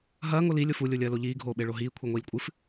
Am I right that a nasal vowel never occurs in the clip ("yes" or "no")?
yes